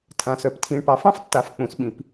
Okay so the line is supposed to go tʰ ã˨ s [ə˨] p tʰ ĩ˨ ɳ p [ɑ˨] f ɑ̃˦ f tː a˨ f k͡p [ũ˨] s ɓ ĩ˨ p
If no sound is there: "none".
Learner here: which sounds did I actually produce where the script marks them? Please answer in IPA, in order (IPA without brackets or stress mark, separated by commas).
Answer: œ˨, ɑ˨, ũ˨